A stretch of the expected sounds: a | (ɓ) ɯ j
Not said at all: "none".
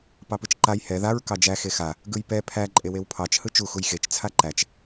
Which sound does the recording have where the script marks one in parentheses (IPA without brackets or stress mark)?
ɡ